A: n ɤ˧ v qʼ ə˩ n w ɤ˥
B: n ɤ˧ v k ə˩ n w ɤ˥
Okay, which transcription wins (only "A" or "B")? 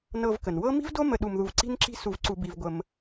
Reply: B